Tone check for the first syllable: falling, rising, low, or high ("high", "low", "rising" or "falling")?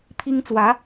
high